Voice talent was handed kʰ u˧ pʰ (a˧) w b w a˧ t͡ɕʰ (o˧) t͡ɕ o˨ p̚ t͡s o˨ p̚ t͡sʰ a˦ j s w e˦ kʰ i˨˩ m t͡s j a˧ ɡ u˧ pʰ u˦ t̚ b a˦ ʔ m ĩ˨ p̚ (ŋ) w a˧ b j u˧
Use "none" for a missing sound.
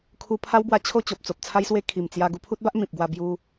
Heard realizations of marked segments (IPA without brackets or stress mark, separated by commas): a˦, o˥˧, ɡ